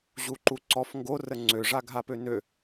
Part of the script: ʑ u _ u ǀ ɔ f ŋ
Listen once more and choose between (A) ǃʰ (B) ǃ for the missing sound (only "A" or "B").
B